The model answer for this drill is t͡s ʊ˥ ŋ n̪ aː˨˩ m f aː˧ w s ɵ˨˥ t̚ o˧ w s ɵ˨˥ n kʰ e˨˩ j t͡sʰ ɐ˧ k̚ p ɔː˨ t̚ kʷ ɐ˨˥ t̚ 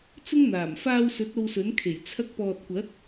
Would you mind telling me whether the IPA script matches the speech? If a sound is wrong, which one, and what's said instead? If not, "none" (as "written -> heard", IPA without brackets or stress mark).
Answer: none